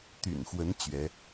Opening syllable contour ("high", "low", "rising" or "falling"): low